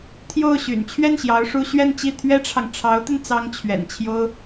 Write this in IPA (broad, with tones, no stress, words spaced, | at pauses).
t̪ʰjo˥˩ʊ̯ɕy̰˨˩n t͡ɕʰɥɛ˥˩nɕjɑ˧˥ʊ̯ ʂu˥ ɕɥɛ˥˧nt͡ɕi˥˩ t̪ʰɥɛ˥ʈ͡ʂʰɑ˨ŋ ʈ͡ʂʰɑ˧˥ʊ̯t̪ə˧n t͡sɑ˥ŋt͡ɕʰɥɛ̰˨˩nt͡ɕʰjo˥ʊ̯